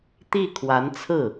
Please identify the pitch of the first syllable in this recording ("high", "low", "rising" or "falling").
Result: falling